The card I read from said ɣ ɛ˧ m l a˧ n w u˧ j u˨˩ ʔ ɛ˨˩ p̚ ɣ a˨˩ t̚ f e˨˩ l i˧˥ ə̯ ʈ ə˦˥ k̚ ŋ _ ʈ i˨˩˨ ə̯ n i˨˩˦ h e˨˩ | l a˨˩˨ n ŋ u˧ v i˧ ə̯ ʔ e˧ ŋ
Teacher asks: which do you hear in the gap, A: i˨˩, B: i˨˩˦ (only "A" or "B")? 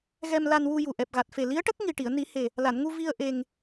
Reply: A